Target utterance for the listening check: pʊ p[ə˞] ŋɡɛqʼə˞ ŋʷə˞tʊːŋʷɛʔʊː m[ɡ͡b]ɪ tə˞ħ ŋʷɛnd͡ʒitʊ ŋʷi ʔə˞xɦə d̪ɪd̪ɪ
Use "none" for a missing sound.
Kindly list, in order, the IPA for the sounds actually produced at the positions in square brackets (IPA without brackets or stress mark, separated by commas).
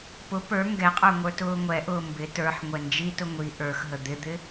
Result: ə˞, b